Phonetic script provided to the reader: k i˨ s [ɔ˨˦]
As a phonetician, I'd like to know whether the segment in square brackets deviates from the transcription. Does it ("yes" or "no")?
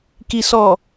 yes